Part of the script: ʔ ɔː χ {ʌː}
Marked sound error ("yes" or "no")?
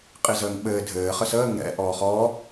yes